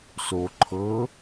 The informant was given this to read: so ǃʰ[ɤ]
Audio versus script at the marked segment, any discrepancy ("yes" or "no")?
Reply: no